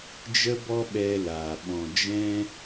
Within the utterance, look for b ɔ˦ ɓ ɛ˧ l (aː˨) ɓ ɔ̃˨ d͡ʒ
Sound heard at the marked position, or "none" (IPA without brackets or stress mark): aː˨